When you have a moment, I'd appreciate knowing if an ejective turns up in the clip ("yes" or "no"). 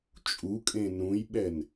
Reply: yes